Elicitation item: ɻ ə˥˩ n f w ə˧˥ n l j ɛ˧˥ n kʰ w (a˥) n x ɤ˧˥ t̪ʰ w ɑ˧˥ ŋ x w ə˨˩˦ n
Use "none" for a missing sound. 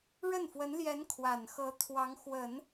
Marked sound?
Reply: a˨˩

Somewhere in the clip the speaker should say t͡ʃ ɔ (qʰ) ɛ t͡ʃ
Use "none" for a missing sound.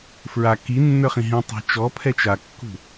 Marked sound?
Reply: pʰ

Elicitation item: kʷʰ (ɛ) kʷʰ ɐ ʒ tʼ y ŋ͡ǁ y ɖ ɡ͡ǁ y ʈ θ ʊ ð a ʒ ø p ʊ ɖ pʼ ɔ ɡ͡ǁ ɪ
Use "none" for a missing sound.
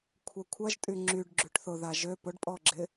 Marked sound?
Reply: ɛ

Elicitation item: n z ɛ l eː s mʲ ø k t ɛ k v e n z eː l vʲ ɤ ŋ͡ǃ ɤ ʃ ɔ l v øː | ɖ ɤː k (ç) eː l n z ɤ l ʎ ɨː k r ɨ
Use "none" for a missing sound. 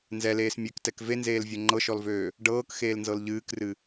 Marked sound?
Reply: x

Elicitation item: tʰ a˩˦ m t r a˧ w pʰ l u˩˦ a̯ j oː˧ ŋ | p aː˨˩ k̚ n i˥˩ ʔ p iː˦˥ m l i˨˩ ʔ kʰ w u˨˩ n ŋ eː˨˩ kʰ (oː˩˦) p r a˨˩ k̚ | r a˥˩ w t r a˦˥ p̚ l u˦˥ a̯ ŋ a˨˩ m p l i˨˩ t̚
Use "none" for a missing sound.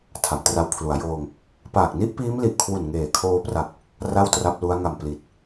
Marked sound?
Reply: oː˧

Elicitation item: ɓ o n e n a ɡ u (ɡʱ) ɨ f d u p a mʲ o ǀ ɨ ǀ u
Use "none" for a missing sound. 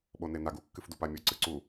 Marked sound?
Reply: kː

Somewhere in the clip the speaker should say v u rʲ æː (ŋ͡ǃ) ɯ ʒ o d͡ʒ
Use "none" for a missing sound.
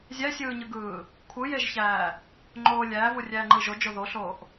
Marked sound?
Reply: ŋ͡ǃ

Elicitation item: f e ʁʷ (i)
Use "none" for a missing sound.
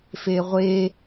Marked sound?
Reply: e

